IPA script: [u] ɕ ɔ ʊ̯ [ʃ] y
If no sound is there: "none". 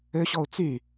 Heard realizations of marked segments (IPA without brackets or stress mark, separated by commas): ø, t͡s